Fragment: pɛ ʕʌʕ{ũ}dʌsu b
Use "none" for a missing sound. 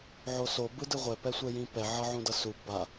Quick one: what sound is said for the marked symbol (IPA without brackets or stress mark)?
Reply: ũ